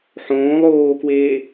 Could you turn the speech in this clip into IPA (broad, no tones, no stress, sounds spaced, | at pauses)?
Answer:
ħ õː lˠ oː k w eː